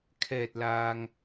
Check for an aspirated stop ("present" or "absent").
present